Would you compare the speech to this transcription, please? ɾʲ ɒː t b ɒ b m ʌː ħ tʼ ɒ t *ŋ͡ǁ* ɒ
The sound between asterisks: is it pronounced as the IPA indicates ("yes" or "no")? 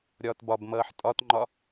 no